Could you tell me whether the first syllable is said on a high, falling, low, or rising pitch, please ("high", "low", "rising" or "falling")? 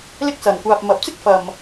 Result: high